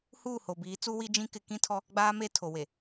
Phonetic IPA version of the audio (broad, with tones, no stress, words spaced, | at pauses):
huː˦˨ho˨biː˨˦t͡su˦ wi˦d͡ʒĩ˦ kɪ˦ kĩ˦tʰɔ˦ | ɡ͡baː˦me˦tʰo˨ we˨